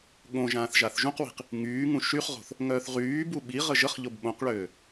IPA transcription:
ɠ õ ʒ ãː θ ʒ a θ ʒ ũ q w i̤ q | ŋ yː ŋ ũ ʃ y χ ʁ o̤ θ | ŋ œː θ ʁ yː b u ɓ i ʁ ə ʒ ə χ ʎ o b ɓ õ q ɭ øː

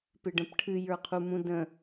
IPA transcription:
p ɪ ɖ ə̃ p ʈʰ ɨ j ə˞ qʰ u m ũ d ə̃

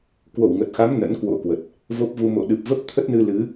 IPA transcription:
k w o˧˩ w ŋ ə˨˩ t̚ x a˨˦ m n ə̰˧˥ n k w o̰˧˥ k w ə˨˩ t̚ | v o˦˥ p̚ v u˧ m o̰˧˨ ɗ ɨ˨˩ p̚ v ə˦˥ p̚ t̪ʰ ə˦˥ t̚ n ɨ˧ l ɨ˨˦

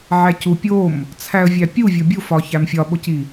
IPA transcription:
ʕ æ c u pʲ o m | t͡sʰ æ ə̯ vʲ æ pʲ u vʲ o bʲ u f ɒ ç æ m fʲ ɒ ɓ o c i

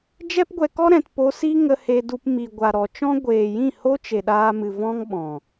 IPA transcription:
d͡ʒ ɛ˦ p ɡʷ ɛ˧ k ɔ˦ ɾ ɛ̃˨ t p o˧ s i˦ ŋ ə˧ h e˧ d u˧ p m i˨ ɡʷ a˨ ɾ ɔ˨ t͡ʃ ɔ̃˦ ɡʷ eː˨ j ĩ˦˨ h o˦ t͡ʃ e˨ ɗ aː˧ m ɨ˨ v ɔ̃˦ ŋ ɓ ɔ̃˨

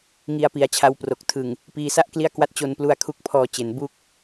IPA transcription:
ŋ i˧ a̯ p i˩˦ a̯ t͡ɕʰ a˧ w p r o˨˩ k̚ tʰ ɯ˨˩ ŋ | p iː˧ s a˥˩ ʔ k l i˥˩ a̯ k w a˥˩ t̚ t͡ɕ o˧ n p l u˧ a̯ kʰ u˦˥ k̚ pʰ ɔː˧ t͡ɕ e˩˦ n b u˥˩ k̚

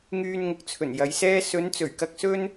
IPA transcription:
ŋ yː˧ n ŋ ʊ˨ k̚ t͡sʰ ɵ˨˩ n j ɐ˨˧ j s ɛː˥ s ɵ˨˧ n t͡s ɵ˨˩ ɥ k ɐ˧ k̚ s ɵ˥ n

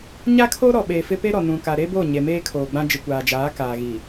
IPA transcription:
ɲ a˦ kʰ oː˦ ɾ ɔ˨ ɓ eː˨ f ɪ˦ p e˦ ɾ ɔ˨ n ũ˨ k a˨ ɾ e˦ b oː˦˨ ɲ e˨ m eː˦ kʰ oː˨ ɡ͡b ã˦ d͡ʒ ɪ˨ kʷ aː˨ d͡ʒ aː˨˦ k aː˨ ɣ i˨

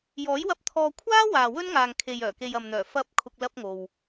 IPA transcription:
j ɔː˨˥ j w ɐ˧ p̚ t̪ʰ ɔː˧ kʷʰ aː˥ w aː˨ w ɵ˥ n ŋ aː˨ ŋ kʰ e˨ j œː˨˩ k e˨ j ɐ˨ m n̪ œː˨˩ f ɐ˨˥ p̚ kʰ ʊ˧ k̚ l ɐ˥ p̚ ŋ o˨ w

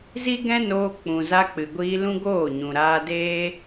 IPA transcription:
z i˦ ɡ ɛ̃˦ n oː˧ k͡p ũ˨ z a˧ k͡p ɨ˨ ɡʷ iː˧ l ũ˦ ɡ oː˦˨ ɲ ũ˨ ɾ aː˧ d eː˦

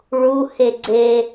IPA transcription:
ɭ u h e ɡ͡ǀ e

